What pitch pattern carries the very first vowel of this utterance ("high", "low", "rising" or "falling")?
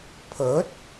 rising